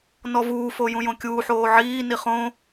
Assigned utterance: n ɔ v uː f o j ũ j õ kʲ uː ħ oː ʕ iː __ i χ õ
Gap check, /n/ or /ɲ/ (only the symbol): n